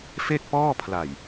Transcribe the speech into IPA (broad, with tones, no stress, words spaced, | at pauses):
fe˥˩k̚pɔː˥˩ pʰla˨˩j